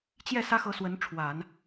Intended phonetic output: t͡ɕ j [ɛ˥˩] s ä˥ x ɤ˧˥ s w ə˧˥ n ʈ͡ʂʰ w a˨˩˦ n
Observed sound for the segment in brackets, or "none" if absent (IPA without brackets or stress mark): ɛ˥˩